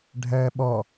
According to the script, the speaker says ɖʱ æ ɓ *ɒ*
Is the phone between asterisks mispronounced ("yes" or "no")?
no